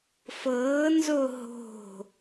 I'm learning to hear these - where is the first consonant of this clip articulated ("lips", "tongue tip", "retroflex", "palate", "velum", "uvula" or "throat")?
lips